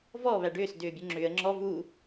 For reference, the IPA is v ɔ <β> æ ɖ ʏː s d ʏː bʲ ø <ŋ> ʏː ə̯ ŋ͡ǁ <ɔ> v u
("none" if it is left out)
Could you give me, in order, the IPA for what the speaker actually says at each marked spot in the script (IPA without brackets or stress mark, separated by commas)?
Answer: β, ŋ͡ǁ, ɔ